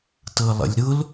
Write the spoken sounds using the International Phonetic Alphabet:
t ɤ lˠ ə̰ lʲ ɾ ʊ l

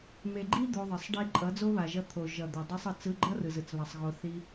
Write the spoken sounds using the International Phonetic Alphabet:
m e˨ ɡ͡ǃ i˦ d̪ o˧ ðˤ ʌ˨ sˤ ɖ i˦ ǃʼ ʌ˨˦ d͡z o˦ β a˨ ʒ ʌ˧ t̪ʰ o˨ ʒ ʌ˨ d̪ o˨ dˤ i˧ sˤ ɯ˨ t͡s ɯ˧ ɡ͡ǃ ʌ˦ r ɯ˨ z ɯ˨ t͡s β a˧ sˤ ɣ o˧ θ i˧

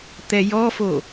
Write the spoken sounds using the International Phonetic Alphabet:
t̪ ɛ j ɔ f o

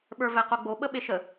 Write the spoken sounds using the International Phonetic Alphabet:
ɓ ə˞ v ɛ q o ɡ͡b o ɓ ə ɓ e ʃ ə

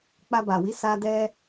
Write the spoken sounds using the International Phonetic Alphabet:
k͡p a˧ b a˨ w i˨˦ s a˧ d ɛ˦

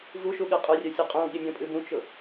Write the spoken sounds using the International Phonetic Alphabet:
v u ʃ u ɠ ɨ qʼ ʊ rʲ œ sʲ ɨ qʼ ũ ɠ i mʲ õ pʼ ɨ b ũ t͡ʃ ʊ

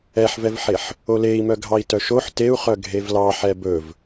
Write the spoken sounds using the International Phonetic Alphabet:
ɛ ħ v ɛ v ħ e ħ | o l e i̯ m œ ɡʱ ɑ i̯ t œ ʃ o ħ t e u̯ χ œ ɡʱ e v l ɑ ħ ɛ b ɵ v

